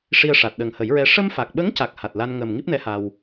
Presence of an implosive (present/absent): present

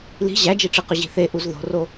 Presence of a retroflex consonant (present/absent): present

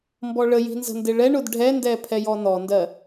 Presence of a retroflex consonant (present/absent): present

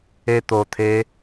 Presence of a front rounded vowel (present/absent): absent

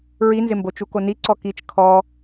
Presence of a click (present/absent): present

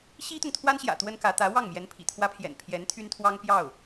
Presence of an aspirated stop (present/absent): present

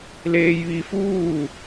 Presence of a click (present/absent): absent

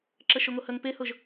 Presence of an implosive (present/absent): absent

